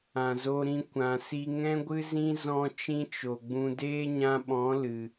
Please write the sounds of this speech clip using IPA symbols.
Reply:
ã˨zo˧ɾĩ˧ kʷã˨si˧ ŋɛ̃˦ɡʷɨ˦zĩ˦ zɔ̃˧ t͡ʃĩ˦t͡ʃo˨ɡ͡bũ˧ deː˦ɲã˧ɓɔ̃˨˦ lɨ˨

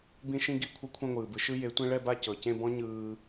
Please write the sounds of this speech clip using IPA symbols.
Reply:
bĩ˥ʃĩ˥ɡi˥˧ kʷʰɤ˥kʷʰẽ˥˧ŋʷɯː˩bɯ˩˥ ʃɯ˥je˩˥tʷẽ˥ ɭɛ˥˧ba˥˧ cɤ˩cẽ˥˧bɔ̃˥ ɲɯː˧

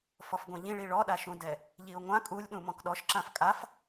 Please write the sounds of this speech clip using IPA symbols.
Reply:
fɔfɡʷɛ̃ʎĩɭi ɭɔɗaʃũdɛ | ʎiʊ̯ŋʷã kʼulʲɗũ mɔ̃kɗɔʃǁãf kʼaf

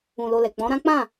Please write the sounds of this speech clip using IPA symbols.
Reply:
ũ˧lo˧lɛ˨ k͡pɔ̃˨˦ɾã˦ k͡pã˦˨

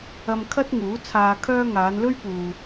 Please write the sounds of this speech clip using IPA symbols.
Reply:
ɐ˧mkʰɐ˥t̚ ŋuː˨˥t͡sʰaː˧kʰœː˥ ŋaː˨˧nlɵ˥ɥpuː˨

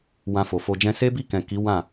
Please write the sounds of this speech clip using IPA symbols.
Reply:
wã˧fo˨fo˧d͡ʒɛ̃˦ se˦bi˦˨kɛ̃˨ ki˨˦ wã˦˨

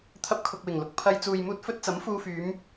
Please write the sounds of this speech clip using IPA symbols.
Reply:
t̪ʰɐ˧p̚kʰʊ˨k̚wɪ˨˩ŋlʊ˨k̚ pʰɐ˧j t͡suː˨jmuː˧t̚ fɵ˧t̚t͡sɐ˨˥m fuː˧fyː˨˧m

